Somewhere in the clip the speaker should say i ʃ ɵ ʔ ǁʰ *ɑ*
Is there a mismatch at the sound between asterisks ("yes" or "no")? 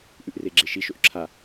yes